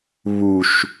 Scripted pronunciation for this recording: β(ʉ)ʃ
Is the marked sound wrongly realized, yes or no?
yes